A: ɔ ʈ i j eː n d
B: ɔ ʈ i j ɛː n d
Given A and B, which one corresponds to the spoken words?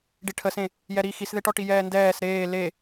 B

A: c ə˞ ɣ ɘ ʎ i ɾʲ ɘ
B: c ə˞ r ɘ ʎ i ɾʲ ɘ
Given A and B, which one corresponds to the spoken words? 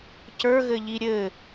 A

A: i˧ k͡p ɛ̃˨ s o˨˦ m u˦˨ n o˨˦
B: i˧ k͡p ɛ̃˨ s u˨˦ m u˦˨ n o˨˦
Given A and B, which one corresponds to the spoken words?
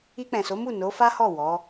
A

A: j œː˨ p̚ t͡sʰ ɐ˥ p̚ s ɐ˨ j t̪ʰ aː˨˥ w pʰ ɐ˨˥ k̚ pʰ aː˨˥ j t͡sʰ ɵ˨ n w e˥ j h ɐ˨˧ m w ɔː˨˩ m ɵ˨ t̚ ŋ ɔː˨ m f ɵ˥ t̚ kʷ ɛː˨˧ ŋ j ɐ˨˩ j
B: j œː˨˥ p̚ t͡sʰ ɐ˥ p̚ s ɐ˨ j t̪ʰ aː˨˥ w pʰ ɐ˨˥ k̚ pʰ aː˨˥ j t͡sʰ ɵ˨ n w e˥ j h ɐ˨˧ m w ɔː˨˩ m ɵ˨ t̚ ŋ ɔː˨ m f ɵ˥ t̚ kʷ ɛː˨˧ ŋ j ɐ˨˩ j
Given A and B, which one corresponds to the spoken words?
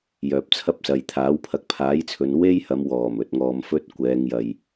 A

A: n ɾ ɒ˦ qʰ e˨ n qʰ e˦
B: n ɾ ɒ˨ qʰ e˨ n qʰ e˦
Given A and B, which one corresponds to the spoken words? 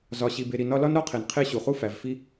A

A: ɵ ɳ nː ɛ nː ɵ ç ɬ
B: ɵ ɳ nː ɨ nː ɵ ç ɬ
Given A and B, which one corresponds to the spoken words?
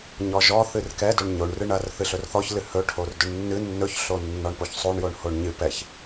B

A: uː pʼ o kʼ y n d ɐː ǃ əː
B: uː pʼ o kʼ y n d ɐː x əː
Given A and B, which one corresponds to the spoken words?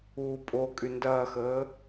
B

